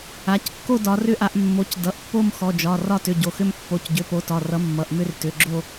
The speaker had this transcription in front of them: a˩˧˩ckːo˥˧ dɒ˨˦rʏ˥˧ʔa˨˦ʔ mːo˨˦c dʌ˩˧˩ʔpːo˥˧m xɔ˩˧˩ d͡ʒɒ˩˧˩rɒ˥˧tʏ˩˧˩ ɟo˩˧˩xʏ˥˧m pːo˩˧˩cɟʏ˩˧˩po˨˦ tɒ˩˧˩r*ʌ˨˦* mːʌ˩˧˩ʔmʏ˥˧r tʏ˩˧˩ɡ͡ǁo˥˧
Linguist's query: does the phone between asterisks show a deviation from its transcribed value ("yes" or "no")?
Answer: no